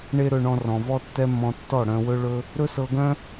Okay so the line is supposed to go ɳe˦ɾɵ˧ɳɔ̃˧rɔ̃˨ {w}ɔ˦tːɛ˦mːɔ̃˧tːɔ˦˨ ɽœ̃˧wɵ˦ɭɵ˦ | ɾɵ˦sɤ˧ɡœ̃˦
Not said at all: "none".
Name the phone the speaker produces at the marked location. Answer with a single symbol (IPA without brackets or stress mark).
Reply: v